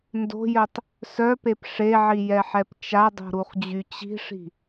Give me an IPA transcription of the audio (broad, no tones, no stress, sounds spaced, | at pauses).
n d o̤ j œ tˤ | s œ p e p ʂ e ʕ i j ɛ ħ ɛ p t͡ʃ a dˤ o̤ ɾ u χ d͡ʑ y t͡ɕ i̤ ʂ i̤